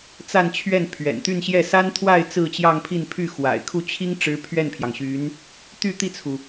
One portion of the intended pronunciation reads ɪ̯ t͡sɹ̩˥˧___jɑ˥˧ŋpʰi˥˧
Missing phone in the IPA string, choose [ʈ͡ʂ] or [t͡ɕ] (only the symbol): t͡ɕ